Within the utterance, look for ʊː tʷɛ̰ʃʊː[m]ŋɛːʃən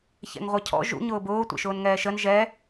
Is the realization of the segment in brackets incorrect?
yes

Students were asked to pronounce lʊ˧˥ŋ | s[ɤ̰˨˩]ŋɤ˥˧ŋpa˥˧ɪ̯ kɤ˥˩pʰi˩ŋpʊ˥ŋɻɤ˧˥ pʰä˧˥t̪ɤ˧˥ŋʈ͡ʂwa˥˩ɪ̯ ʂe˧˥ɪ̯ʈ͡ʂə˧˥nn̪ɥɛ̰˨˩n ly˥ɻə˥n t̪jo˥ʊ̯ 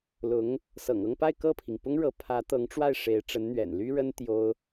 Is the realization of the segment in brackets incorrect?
no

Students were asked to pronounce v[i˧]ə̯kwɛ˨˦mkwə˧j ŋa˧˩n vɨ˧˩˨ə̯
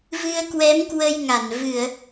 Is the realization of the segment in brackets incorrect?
yes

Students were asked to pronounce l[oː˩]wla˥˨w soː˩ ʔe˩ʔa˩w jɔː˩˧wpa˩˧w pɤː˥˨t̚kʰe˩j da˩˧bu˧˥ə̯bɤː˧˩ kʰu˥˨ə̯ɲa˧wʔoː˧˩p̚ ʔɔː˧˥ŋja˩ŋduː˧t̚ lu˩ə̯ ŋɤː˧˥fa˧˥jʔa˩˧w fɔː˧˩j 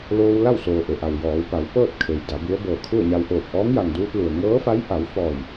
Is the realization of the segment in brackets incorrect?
yes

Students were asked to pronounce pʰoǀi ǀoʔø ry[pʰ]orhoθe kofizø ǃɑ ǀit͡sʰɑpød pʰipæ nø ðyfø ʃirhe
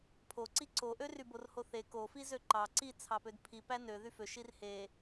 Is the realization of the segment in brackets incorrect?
yes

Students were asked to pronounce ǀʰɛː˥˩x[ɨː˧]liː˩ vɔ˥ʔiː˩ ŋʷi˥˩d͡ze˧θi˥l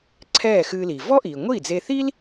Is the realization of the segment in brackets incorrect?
no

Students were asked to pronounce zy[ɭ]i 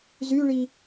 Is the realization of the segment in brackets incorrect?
no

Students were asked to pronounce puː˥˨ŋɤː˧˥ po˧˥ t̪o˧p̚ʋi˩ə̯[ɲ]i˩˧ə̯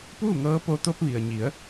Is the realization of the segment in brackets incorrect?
no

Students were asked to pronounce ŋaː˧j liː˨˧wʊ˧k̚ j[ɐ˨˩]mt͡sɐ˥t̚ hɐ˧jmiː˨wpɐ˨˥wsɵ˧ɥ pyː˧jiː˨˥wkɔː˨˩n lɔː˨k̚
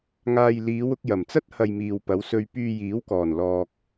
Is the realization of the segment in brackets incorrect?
no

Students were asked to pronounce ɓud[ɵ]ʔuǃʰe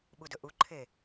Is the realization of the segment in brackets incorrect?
no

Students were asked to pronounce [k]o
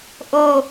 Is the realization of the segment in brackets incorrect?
yes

